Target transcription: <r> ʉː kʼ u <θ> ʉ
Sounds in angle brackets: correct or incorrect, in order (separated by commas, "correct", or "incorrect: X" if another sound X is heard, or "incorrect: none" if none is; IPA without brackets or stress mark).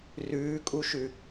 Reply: correct, incorrect: ʃ